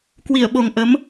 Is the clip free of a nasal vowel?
yes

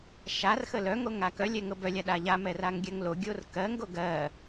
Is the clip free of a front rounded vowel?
no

